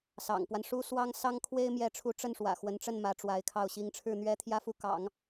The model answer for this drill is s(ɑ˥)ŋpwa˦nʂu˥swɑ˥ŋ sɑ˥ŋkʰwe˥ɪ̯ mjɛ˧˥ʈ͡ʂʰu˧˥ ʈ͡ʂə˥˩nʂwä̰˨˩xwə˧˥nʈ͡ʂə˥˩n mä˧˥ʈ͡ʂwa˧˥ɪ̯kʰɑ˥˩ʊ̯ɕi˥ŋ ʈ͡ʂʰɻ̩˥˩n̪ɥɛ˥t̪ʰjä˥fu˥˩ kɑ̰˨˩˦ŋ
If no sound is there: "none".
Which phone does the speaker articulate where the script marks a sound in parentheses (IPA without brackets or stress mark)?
ɑ̰˨˩